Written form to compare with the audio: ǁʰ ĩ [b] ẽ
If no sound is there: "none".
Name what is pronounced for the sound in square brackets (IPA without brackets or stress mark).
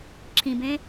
b